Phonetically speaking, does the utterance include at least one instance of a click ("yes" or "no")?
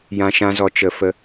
no